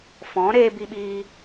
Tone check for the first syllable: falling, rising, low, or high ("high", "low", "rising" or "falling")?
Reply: rising